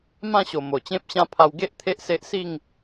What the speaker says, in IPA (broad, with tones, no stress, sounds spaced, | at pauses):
m ã˥˧ ɕ o˨˩ m o˨˩ t͡ɕ ẽ˦ p̚ ɕ ã˦ pʰ a˧ w ɡ e˦ ʔ t̪ʰ e˦ ʔ s e˦ ʔ s i˥˧ ŋ